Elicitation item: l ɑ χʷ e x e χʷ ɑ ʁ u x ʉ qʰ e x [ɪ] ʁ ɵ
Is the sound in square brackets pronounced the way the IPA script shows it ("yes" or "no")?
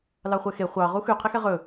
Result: no